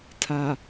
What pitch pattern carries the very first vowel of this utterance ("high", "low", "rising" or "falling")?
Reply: low